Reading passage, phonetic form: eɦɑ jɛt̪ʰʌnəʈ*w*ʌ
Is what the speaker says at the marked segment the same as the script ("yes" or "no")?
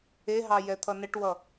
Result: yes